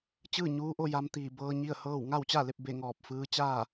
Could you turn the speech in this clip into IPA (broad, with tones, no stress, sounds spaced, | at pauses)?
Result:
t͡ɕ ɯː˥˨ ɲ uː˧˥ ʔ o˥˨ j a˧ m t̪ iː˧˩ b ɤː˧ ɲ i˥˨ ə̯ h ɤː˥˨ w ŋ a˥˨ w t͡ɕ a˥˨ l e˥˨ p̚ b e˥˨ ŋ ɔː˧˩ p̚ f ɯː˧˥ t͡ɕ aː˥˨